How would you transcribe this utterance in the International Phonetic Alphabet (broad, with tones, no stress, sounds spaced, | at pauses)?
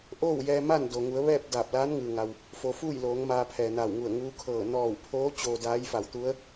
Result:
ʔ oː˥˨ w j ɛː˧ m a˥˨ n d o˩ ŋ u˩˧ ə̯ ʋ ɛː˥˨ p̚ d aː˧˩ p̚ l aː˧˥ n ŋ ɯː˩ ŋ a˩ w | f o˩˧ f uː˥˨ j l oː˩˧ ŋ m aː˧ pʰ ɛː˩ n a˧˩ w ŋ u˧˩ ə̯ ŋ uː˧˥ kʰ ɤː˧˩ n ɔː˧˩ w pʰ oː˧˥ t͡ɕ oː˧ d aː˧˥ j f a˧˩ w t̪ u˧˥ ə̯